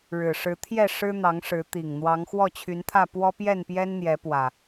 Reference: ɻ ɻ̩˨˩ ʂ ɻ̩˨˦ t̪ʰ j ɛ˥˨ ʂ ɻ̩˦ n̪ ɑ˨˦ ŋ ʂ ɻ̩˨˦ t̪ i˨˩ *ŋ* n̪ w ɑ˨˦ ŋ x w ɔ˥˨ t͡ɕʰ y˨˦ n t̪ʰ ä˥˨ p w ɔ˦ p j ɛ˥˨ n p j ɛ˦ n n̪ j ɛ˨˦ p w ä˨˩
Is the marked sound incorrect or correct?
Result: correct